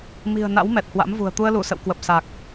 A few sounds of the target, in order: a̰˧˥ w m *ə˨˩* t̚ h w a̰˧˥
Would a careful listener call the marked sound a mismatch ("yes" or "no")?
yes